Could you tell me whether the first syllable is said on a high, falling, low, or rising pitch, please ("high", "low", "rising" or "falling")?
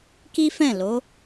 high